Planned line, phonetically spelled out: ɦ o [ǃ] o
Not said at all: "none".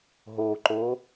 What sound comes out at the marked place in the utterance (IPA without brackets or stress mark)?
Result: ǃ